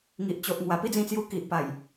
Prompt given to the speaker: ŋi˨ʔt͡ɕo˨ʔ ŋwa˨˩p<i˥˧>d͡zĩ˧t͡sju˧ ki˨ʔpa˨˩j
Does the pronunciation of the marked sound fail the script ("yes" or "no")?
no